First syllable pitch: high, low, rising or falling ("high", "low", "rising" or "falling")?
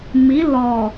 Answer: rising